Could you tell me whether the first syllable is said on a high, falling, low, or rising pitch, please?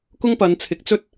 high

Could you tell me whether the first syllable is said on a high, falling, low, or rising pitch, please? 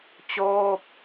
falling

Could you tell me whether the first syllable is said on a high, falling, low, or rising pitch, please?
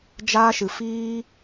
high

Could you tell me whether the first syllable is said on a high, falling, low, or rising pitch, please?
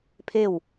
falling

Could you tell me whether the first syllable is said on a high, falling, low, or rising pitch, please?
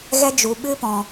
high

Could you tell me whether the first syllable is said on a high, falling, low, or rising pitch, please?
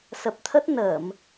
low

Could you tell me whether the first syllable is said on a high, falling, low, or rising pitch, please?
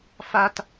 high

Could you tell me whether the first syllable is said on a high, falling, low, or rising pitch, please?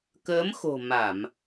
rising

